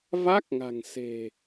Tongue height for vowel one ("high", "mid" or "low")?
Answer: low